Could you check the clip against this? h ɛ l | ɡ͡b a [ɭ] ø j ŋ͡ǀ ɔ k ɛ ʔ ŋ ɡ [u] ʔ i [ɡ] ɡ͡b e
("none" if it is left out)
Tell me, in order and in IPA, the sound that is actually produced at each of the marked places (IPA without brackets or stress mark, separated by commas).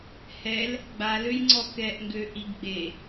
l, ø, ɡ